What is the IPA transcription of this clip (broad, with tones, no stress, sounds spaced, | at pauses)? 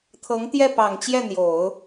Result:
t̪ʰ ɤ˧˥ ŋ t̪ j ɛ˥˩ p ɑ˨˩ ŋ t͡ɕ j ɛ˥˩ n̪ j o˨˩˦ ʊ̯